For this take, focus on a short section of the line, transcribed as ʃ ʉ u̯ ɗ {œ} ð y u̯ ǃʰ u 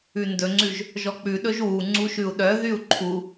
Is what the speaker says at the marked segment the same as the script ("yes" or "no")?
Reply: yes